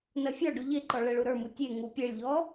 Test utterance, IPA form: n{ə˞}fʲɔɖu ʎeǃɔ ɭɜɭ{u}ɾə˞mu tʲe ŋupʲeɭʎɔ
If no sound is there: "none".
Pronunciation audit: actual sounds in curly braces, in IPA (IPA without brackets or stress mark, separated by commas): ɜ, u